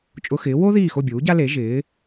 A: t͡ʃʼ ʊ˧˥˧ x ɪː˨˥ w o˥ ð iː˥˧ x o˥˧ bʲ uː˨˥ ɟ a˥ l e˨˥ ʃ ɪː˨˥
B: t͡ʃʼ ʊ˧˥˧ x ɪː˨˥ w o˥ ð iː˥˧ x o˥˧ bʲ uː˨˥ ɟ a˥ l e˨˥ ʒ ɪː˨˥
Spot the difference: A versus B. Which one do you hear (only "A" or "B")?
B